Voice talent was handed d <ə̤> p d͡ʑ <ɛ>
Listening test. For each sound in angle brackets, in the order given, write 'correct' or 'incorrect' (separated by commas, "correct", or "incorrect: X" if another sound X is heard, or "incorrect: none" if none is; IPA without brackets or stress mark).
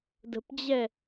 correct, correct